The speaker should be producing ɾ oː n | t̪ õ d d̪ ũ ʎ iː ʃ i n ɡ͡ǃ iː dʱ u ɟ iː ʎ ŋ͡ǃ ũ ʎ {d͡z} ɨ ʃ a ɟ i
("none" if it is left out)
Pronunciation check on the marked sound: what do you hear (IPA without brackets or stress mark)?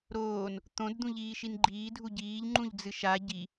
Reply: d͡z